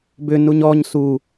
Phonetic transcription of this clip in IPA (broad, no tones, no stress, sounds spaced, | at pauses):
b ʏ n u ɲ ɔ ɲ s u